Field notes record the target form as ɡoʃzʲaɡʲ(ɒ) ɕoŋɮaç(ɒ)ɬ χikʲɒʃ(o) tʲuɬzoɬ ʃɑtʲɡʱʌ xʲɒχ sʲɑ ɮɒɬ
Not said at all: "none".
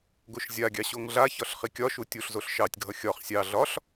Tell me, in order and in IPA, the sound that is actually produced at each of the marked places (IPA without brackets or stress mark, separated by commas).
ɑ, ɒ, u